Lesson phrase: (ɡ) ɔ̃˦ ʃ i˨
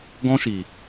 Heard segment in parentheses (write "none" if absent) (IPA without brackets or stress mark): ɡ